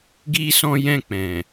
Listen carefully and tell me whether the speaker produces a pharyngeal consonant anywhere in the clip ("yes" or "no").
no